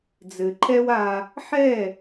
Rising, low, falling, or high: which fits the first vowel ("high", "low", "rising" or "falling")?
low